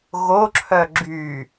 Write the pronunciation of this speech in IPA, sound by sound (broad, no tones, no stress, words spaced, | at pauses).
ɣoǁʰœ ɡ͡ǁy